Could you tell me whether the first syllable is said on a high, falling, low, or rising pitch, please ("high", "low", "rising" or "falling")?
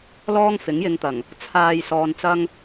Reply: high